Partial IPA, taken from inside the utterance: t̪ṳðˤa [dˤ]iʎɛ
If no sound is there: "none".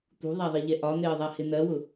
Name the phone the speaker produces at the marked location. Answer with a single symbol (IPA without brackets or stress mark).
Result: ðˤ